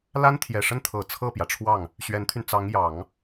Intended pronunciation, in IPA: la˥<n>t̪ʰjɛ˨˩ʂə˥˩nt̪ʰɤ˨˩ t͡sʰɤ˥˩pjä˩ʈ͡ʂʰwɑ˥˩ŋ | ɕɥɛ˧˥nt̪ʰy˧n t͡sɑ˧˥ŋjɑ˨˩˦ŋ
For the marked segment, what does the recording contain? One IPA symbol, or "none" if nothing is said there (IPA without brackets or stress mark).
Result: n